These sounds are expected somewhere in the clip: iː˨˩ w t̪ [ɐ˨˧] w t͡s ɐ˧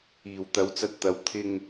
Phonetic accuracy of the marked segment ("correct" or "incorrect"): correct